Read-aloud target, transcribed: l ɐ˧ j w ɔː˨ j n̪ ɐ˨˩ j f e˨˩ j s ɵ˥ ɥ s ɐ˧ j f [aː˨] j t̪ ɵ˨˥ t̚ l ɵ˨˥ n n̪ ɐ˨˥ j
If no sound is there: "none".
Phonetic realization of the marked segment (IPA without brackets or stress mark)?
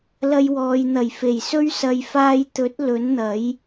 aː˧